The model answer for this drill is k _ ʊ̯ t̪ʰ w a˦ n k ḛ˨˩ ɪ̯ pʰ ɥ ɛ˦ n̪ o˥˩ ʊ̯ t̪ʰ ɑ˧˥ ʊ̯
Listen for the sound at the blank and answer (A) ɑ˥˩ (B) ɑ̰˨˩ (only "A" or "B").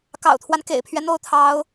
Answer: B